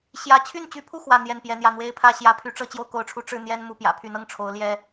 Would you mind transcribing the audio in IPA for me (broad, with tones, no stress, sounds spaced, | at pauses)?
ɕ j ä˥˧ t͡ɕʰ y˥˩ n t͡ɕ y˧˥ pʰ u˥˧ x w ä˥˧ n̪ j ɛ˥˩ n p j ɛ˧˥ n̪ j ä˥˩ n̪ w e˥ ɪ̯ pʰ ä˥ ɕ j ä˥˩ pʰ y˧˥ ʈ͡ʂ ɤ˥˧ t͡ɕ j o˥˩ ʊ̯ k o˧˥ ʊ̯ ʈ͡ʂʰ u˧˥ ʈ͡ʂ ɻ̩˥˩ n̪ j ɛ˥ n m u˥˩ p j ä̰˨˩ pʰ y˧˥ n ɤ˥˩ ŋ ʈ͡ʂʰ o˧˥ ʊ̯ l j ɛ˥